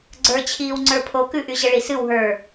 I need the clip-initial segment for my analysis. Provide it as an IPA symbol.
ɡ͡ǀ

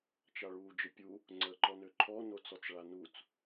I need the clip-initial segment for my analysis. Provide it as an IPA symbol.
t͡ʃ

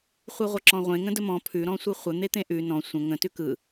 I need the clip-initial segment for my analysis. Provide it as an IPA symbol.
χʷ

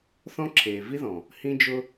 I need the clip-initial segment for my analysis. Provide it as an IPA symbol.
θ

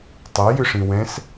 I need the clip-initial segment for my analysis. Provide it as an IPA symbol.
tˤ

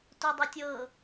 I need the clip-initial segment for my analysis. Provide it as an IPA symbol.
t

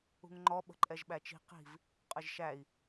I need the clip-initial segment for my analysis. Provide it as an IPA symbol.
ṳ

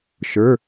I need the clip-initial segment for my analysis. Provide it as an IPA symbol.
ʃ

